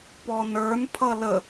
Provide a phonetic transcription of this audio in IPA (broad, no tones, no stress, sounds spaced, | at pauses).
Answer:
p ɔ n ə˞ n pʰ ʌ l ə